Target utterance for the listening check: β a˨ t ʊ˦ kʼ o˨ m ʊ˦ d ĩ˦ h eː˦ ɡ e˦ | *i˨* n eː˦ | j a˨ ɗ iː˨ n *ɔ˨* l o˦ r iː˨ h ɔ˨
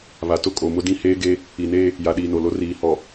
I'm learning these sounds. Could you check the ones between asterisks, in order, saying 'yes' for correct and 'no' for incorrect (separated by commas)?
yes, no